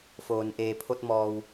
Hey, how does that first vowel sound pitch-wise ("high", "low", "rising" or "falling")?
low